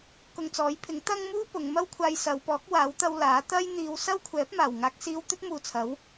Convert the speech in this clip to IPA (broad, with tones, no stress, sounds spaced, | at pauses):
k ʊ˧ ŋ t͡s ɔː˨˥ j pʰ ɪ˨˥ ŋ t̪ ɐ˥ ŋ m uː˥ p ʊ˨˧ ŋ m ɐ˥ w kʷʰ aː˧ j s ɐ˨˧ w p ɔː˨˥ k̚ w aː˨˥ w t̪ ɐ˧ w l aː˨˥ t̪ ɐ˥ j n̪ iː˨˧ w s ɐ˥ w kʷʰ ɛː˨˥ p̚ m aː˨˩ w ŋ aː˧ k̚ s iː˧ w t̪ ɵ˥ t̚ m uː˨ t͡sʰ ɐ˨˥ w